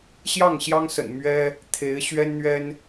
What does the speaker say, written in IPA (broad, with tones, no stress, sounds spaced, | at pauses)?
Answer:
ɕ j ɑ˥˩ ŋ ɕ j ɑ˥ ŋ s ə̰˨˩ n m ɥ ɛ˥ | t̪ʰ e˧˥ ɪ̯ ɕ ɥ ɛ˥ n n̪ ɥ ɛ˥ n